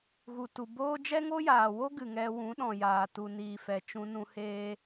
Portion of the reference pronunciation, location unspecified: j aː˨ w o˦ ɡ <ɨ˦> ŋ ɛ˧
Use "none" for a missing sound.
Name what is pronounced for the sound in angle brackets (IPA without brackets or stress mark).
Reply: ɨ˨